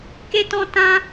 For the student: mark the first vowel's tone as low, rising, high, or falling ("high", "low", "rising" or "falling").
high